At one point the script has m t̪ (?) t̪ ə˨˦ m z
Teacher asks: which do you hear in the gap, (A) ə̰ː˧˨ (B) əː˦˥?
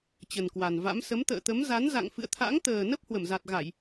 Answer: A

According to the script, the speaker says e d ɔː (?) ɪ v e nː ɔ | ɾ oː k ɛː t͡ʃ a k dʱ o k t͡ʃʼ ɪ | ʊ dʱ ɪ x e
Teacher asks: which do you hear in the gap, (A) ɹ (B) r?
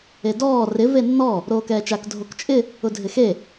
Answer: B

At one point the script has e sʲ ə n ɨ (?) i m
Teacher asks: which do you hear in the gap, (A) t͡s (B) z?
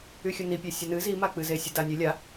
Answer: B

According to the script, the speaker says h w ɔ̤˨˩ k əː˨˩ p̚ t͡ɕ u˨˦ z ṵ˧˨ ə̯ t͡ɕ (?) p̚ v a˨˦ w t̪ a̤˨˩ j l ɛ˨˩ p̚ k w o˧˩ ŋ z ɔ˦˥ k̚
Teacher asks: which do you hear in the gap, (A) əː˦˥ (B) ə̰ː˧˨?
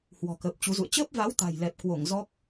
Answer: A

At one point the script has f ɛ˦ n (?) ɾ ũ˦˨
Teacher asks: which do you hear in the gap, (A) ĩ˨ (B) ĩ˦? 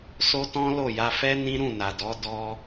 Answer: B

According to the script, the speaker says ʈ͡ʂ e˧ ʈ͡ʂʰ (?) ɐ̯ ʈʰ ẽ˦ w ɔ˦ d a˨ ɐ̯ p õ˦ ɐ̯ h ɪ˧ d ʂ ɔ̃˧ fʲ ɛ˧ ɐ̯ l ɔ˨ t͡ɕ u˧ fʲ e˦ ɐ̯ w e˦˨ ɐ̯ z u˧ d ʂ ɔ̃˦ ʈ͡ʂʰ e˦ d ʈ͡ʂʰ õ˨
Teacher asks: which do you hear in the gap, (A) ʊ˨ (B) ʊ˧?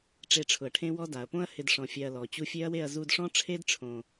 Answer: A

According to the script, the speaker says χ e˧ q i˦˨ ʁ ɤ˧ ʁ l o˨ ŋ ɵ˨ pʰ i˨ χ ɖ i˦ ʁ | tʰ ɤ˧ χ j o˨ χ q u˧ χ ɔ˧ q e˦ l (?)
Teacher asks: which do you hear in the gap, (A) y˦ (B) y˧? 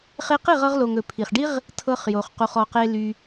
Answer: A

